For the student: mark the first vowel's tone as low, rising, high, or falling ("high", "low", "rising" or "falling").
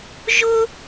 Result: high